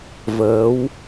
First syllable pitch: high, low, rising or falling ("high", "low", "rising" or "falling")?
rising